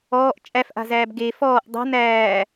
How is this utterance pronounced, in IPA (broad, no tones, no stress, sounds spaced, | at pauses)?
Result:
ɔː ʔ t͡ʃʼ æ f ʔ a̤ z æː b ɡ e f ɔː ʔ dˤ a̤ n æː